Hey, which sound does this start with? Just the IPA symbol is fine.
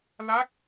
l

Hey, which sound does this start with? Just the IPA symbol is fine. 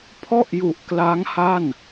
pʰ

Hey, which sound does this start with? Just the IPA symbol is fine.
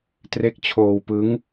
t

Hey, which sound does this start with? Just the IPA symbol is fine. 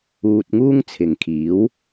uː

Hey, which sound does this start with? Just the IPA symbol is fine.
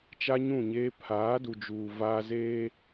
t͡ʃ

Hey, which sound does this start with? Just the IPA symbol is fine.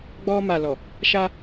ɡ͡b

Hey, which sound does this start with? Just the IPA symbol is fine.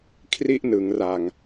kʰ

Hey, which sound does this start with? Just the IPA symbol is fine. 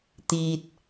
t̪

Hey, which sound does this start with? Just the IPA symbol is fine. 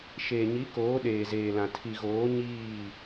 ʃ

